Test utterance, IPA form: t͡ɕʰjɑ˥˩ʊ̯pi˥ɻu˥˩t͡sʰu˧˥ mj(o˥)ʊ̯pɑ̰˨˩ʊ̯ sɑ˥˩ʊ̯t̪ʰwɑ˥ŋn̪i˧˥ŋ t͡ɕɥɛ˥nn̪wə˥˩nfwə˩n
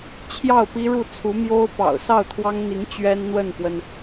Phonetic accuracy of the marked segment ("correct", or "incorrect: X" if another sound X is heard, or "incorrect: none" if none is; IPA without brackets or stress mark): correct